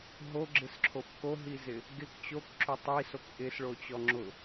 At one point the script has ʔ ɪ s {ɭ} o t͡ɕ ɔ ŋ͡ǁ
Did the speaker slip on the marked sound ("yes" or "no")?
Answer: no